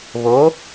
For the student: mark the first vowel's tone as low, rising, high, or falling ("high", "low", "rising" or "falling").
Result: rising